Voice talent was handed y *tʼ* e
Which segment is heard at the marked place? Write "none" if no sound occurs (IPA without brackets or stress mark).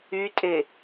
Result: tʼ